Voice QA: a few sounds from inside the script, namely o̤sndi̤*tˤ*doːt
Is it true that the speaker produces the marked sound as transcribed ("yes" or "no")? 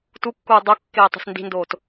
no